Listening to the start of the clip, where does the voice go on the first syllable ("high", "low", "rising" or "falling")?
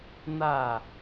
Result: falling